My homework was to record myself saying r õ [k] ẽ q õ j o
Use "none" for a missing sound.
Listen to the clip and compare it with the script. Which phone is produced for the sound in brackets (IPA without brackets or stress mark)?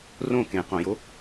k